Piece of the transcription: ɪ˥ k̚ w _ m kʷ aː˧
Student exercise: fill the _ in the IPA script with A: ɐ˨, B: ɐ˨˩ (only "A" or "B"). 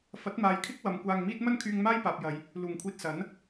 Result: A